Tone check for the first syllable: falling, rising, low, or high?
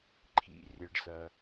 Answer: low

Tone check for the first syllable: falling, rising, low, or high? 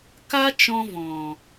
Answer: high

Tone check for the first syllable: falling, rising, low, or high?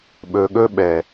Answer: low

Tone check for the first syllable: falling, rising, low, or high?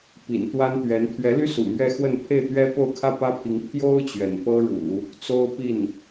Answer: low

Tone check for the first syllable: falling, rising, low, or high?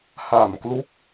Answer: low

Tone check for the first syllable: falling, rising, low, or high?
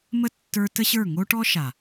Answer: falling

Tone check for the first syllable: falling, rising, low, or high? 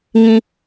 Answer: high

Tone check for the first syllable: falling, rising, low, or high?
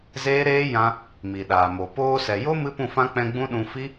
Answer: high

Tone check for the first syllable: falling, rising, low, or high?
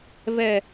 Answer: low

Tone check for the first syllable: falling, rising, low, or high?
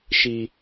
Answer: high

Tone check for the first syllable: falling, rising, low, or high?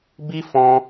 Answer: high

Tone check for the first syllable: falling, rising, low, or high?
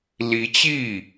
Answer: rising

